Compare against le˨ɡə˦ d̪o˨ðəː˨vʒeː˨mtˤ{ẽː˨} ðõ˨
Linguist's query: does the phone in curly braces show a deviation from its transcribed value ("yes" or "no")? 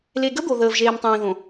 no